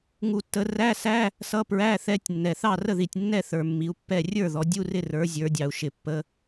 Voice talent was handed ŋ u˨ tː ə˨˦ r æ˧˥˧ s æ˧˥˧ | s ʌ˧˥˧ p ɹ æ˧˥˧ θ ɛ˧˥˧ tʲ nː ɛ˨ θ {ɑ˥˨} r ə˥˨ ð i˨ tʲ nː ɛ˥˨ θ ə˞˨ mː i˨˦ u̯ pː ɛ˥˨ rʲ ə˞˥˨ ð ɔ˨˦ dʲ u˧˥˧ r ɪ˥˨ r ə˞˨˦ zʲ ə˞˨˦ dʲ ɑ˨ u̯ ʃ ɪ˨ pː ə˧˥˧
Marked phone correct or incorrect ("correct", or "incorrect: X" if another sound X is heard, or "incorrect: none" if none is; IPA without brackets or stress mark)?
correct